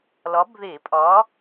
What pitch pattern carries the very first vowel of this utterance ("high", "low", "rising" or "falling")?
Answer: rising